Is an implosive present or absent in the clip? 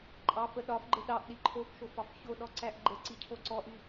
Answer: present